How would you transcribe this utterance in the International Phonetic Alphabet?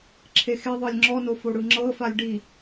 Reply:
ǁʰexeðˤɤlʲ ŋ͡ǁɔno foɽɯŋ͡ǁɤfalʲ ɖi

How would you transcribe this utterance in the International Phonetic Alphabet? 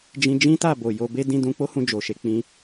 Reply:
d͡ʒĩ˧d͡ʒĩ˦ta˦˨bo˨ jo˧be˦ dĩ˧dũ˧k͡po˦hũ˧ d͡ʒo˨ʃe˧k͡pĩ˧

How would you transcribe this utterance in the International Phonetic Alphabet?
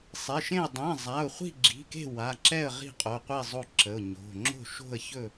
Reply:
sˤe˩˧˩ʃẽ˥˨ə̯ dˤẽ˩˧˩ zˤa˩˧˩ʊ̯χʷi̤˥˨ɡ͡ǁi̤˩˧˩ke̤˥˨ wa˩˧˩ǁɛ˥˨ə̯ ʁi̤˥˨qʼo˩˧˩qʷi˥˨ zˤo˥˨ǁə˩˧˩ʊ̯ɲo̤˩˧˩ ŋ͡ǁo̤˥˨ʃo̤˥˨ə̯çɵ˥˨

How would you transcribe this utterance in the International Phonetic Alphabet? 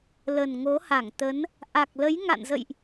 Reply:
lə˨˩nŋo˨˦ha˧˩ŋt̪ə˨˦n | ʔa˨˩k̚lə˨˦jŋa̰˧˨nzə̰˧˨jʔ

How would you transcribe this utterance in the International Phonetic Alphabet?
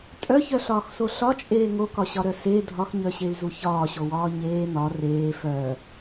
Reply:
tʼœçœɬɒːxso ɬɒt͡ʃʼeː ŋokɒɕɒɾœ se dʱɒxɲœɕey̯zu çɒːɕowɒː ɲeː nɒ reː fœ

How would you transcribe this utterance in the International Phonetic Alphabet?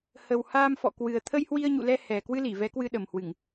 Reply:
hə˨˩whaː˧m fɔ̰˧˨kwɨ˨˩ə̯ t̪ʰə˧j hwi˧ə̯ɲṵ˧˨lɛ˧ hɛ˨˩ kwɨ˧li˧˩ vɛ˨˦kwɨ˧ɗə˨˩mhwɨ˧˩˨ŋ

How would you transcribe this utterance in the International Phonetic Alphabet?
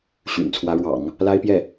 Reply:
ɕy̰˨˩nt͡sʰwä˧˥ ɻwɑ̰˨˩˦ŋ | la˥ɪ̯pjɛ˥˩

